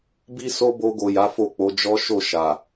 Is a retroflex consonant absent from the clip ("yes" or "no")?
yes